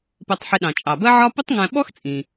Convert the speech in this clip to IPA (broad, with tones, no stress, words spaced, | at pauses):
pɜ˧tˤħɪ˧ ɗɑ̃˩t͡ʃʼɑ˩bɜ˥ʕɒ˥ pʊ˥tˤŋæ̃˧ɓɔ˥xt͡sʼĩ˩